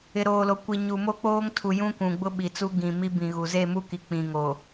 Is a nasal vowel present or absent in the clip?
present